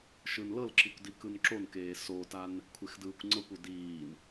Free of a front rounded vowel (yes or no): yes